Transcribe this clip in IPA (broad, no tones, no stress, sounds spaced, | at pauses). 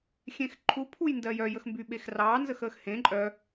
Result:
xʲ ẽ x ǃʰ u pʰ u j n d ɜ j œ j ə x m b y ɓ e x r ɑː n z ə x əː x h ẽ ǃʼ œ